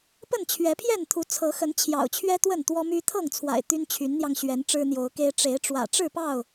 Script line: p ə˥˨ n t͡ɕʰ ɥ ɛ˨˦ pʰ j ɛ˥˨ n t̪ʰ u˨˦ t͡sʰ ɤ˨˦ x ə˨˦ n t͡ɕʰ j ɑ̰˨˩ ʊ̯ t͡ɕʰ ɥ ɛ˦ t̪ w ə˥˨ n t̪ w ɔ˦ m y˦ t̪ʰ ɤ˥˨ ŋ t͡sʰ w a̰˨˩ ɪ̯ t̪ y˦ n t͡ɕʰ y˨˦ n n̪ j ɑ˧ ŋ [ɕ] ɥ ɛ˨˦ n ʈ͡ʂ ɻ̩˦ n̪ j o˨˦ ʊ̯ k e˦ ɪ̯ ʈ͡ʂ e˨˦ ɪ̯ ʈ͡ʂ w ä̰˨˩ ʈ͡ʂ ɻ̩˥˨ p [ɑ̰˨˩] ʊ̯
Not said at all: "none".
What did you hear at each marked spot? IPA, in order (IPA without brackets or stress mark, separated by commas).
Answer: ɕ, ɑ˥˨